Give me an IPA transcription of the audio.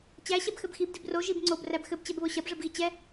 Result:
t͡ɕ æ ɕ ɛ b x ɘ b x i b d i b r o ʒ i b ŋ͡ǀ o b r æ b x ɘ b t͡ɕ ɛ b β o ɕ ɐ b ʐ ɘ b ɣ i t͡ɕ ɛ

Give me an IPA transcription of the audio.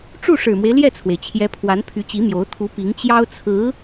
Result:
ʈ͡ʂ u˥˩ ʂ ɻ̩˨˩ m w e˦ ɪ̯ l j ɛ˥˩ t͡sʰ w e˩ ɪ̯ t͡ɕʰ j ɛ˧˥ pʰ w a˧˥ n pʰ y˧˥ t͡ɕ i˧˥ m j o˧˥ ʊ̯ t̪ʰ u˧˥ p i˧˥ ŋ t͡ɕ j ɑ˥ ʊ̯ t͡sʰ ɹ̩˧˥

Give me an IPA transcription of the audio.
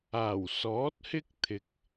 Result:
aː˨˩ w s ɔː˨˥ t̚ h ɪ˥ k̚ t̪ʰ ɪ˨ k̚

